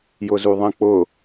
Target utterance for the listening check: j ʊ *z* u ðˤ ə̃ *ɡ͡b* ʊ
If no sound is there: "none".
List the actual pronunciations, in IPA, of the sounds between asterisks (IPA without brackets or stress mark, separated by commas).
z, k͡p